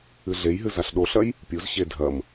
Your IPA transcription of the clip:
ɨ ɮ e j ɦ ɨ z a ɬ ɗ o ɬ ɐ j | pʲ u z ɕ e dʱ ɐ m

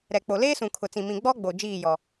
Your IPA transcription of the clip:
ɾ ɛ˨ k͡p o˨ l eː˦ s ũ˨ kʰ ʊ˨ t͡s ĩ˨ m ĩ˨ ɡ͡b ɔ˦ ɡ͡b o˨ d͡ʒ iː˦˨ j ɔ˨

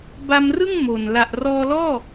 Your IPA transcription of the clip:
b a˧ m r ɯ˥˩ ŋ m o˨˩ n l a˨˩ ʔ r ɔː˧ l ɔː˥˩

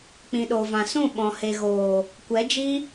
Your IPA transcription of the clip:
k͡p ĩ˨ ɗ o˨ v ã˨ s ũ˦˨ ɓ ɔ̃˨ h e˨ ɣ oː˨ | kʷ ɛ˨˦ d͡ʒ i˦

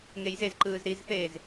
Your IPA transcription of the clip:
ŋ e j z e z ǃ ɯː z ɾ i z θ eː z

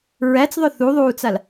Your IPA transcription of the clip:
ɹ æ t͡s ðˤ œ θ u ðˤ uː t͡s a l

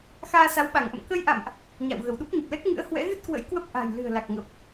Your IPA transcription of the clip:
x aː˧ s a˨˦ w ɓ a˧˩ ŋ ʔ ə̰˧˨ m k ə˧ j ʔ a̰˧˨ m ʔ | ɲ a̰˧˨ w ɣ ə˧˩ w ɗ u˦˥ p̚ ɲ ə˨˩ p̚ l ɛ˦˥ k̚ ŋ ɨ̰˧˥ ə̯ h w ɛ̰˧˥ ɣ ɨ˦˥ t̚ k w ə̰˧˥ j k w ə˦˥ p̚ ʔ a̤˨˩ j l ɨ̤˨˩ ə̯ l a˨˩ k̚ ŋ ə˨˩ p̚

